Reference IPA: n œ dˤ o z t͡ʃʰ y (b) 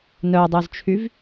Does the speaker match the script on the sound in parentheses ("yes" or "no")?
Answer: no